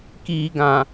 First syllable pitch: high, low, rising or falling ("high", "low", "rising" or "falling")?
low